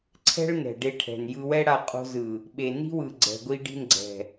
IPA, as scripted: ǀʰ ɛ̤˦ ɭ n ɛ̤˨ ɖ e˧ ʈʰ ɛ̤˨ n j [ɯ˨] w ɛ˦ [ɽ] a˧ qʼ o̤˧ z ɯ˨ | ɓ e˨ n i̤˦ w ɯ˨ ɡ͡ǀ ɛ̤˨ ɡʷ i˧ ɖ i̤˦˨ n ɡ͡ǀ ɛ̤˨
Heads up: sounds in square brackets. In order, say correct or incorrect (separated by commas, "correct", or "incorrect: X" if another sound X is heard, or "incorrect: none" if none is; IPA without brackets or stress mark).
incorrect: ɯ˧, correct